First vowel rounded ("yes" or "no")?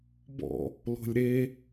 yes